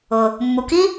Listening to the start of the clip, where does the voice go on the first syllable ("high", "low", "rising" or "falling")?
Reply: low